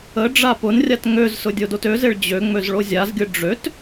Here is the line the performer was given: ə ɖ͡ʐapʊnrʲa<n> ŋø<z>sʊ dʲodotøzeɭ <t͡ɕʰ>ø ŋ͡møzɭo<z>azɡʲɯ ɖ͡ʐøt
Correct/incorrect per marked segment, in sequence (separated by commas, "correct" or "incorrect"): incorrect, correct, incorrect, incorrect